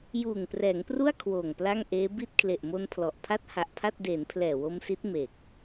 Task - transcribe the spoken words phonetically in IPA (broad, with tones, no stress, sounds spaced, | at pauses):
j uː˨˩ ŋ p r ɛː˩˦ ŋ p r u˥˩ a̯ kʰ w oː˨˩ ŋ p l a˥˩ ŋ ʔ eː˦˥ b i˥˩ t̚ kʰ l e˨˩ ʔ m o˧ n pʰ l ɔ˨˩ ʔ pʰ a˦˥ t̚ h a˨˩ ʔ pʰ a˥˩ t̚ d eː˩˦ n pʰ l ɛː˨˩ w o˧ m s i˦˥ t̚ m e˨˩ k̚